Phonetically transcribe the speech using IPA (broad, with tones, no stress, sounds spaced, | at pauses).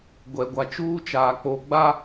ɡʷ ɛ˨ ɡʷ a˨ t͡ʃ uː˦ t͡ʃ aː˨ k͡p o˨ ɡ͡b a˦